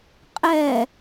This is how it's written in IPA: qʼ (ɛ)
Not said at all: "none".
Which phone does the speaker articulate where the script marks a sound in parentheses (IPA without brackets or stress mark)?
ɛ